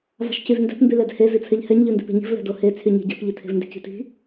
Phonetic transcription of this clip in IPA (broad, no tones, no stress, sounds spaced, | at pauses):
v ɑ̤ ʃ c y v n d ɛ̤ p m b y l ɛ d h e z i t͡sʰ ɛ ʎ h ɛ ɲ ʎ ʉ n d i̤ p e̤ ɲ i̤ v l ɛ̤ d o h e t͡sʰ y ɲ e̤ ɟ ɛ̤ p ʎ i tʰ e̤ v n d i̤ c i̤ t i̤